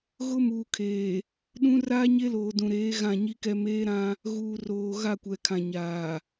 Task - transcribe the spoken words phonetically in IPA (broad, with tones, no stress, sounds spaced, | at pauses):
ɣ ʊ˦ m uː˨ kʰ eː˨ | ɗ ũ˦ r aː˦ ɲ e˦ l oː˨ d ũ˨ ɾ eː˨˦ ɣ ã˦˨ ɲ i˦ k ɛ˦ m eː˦ ɾ ã˦ | ɣ uː˨ r oː˨ ɣ a˦˨ kʷ ɛ˨ kʰ ã˨ ɲ aː˨